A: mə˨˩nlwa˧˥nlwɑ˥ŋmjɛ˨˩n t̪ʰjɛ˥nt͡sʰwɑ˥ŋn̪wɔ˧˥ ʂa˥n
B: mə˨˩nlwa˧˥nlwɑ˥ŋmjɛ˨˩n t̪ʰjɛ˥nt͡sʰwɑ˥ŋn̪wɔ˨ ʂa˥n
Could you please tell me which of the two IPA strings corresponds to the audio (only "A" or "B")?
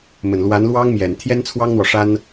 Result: B